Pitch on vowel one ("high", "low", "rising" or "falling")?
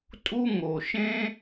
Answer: high